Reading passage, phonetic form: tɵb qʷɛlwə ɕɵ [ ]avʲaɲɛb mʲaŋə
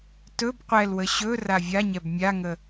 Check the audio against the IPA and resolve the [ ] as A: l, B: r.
B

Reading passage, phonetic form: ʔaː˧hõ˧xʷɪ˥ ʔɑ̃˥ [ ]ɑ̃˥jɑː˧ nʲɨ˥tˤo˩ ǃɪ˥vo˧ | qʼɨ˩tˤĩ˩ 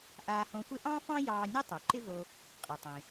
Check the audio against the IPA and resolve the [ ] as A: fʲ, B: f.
B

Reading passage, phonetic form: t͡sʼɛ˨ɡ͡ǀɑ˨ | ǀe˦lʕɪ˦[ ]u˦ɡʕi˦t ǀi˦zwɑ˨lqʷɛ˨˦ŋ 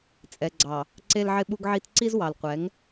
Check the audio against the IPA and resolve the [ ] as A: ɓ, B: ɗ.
A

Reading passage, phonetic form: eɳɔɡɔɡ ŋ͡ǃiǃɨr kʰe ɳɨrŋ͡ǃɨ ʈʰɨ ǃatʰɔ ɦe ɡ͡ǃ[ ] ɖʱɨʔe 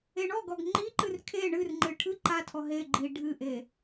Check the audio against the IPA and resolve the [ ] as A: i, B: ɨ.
A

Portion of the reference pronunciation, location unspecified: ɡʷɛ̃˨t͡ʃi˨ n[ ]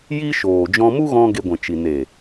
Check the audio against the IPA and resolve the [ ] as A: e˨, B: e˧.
A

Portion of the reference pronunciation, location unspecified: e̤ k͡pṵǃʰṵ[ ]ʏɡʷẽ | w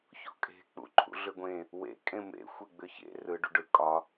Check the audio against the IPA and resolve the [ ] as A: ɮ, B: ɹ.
A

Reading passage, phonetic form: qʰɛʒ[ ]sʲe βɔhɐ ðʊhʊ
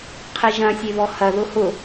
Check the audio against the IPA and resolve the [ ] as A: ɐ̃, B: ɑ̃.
A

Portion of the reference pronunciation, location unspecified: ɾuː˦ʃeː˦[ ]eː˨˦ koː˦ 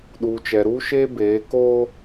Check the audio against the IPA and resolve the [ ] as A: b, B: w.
A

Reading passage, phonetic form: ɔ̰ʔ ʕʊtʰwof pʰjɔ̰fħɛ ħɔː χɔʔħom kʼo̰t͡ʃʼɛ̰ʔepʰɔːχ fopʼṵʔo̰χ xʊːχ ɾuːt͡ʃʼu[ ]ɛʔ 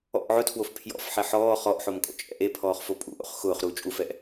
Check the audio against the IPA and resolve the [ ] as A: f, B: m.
A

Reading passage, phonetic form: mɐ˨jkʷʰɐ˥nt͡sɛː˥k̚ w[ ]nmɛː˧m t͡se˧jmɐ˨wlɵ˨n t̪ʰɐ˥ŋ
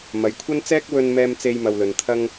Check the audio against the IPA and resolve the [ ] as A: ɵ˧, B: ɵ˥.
A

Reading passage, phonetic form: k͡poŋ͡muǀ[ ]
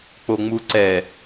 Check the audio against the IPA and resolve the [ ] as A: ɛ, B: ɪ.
A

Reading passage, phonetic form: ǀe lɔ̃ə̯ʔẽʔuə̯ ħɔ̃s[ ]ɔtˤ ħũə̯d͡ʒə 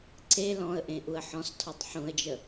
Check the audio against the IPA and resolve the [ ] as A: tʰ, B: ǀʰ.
A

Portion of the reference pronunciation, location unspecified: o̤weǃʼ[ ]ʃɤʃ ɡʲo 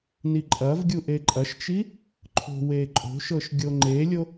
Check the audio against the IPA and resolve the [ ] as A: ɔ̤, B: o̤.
B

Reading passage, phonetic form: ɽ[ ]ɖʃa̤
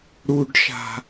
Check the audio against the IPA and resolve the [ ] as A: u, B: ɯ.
A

